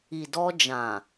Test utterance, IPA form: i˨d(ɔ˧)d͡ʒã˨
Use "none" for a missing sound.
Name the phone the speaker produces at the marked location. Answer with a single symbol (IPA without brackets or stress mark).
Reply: ɔ˧